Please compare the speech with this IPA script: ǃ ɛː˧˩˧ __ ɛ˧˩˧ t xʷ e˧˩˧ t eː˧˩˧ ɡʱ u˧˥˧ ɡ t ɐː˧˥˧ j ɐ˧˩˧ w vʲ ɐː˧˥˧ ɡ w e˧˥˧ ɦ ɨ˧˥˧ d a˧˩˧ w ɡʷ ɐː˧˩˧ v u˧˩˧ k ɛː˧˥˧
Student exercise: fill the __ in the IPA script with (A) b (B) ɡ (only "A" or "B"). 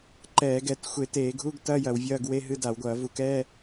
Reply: B